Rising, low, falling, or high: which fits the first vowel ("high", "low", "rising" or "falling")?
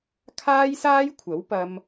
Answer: high